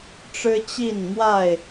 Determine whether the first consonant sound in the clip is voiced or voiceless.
voiceless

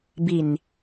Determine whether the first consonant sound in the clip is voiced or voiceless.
voiced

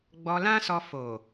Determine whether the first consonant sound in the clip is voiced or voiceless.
voiced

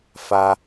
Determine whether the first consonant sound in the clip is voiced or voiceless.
voiceless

